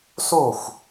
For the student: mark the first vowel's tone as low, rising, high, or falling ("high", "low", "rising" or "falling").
falling